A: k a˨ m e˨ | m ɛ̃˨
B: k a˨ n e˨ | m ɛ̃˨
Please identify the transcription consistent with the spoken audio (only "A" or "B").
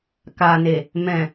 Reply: B